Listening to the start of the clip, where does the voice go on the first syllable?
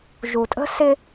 low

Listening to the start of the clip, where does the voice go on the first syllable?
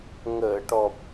low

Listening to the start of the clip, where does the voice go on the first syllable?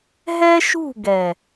high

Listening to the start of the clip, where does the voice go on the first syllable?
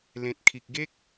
low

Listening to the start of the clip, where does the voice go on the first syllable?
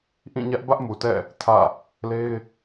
falling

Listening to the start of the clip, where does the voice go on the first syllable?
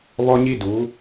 high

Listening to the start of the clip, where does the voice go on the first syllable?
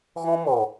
high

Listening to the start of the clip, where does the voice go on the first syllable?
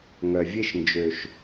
low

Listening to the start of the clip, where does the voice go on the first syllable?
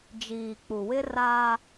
low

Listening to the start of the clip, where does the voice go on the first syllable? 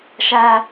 high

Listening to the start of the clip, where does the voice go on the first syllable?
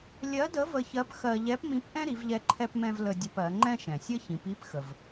rising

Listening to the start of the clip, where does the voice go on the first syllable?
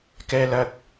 high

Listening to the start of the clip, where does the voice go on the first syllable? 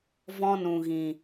high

